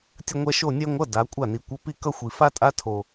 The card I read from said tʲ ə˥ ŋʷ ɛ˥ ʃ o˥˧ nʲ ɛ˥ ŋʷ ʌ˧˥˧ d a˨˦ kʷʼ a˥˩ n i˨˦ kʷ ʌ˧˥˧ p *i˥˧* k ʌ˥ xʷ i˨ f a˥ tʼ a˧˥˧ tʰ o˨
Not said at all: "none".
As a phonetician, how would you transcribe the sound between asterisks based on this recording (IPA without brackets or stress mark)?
i˥˧